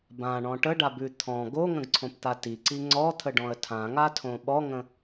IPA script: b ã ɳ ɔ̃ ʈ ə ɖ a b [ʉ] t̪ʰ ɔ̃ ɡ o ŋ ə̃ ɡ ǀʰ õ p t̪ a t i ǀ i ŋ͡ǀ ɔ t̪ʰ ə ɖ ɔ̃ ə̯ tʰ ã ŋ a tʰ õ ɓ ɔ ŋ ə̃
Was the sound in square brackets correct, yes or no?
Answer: yes